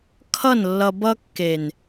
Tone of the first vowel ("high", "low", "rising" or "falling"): falling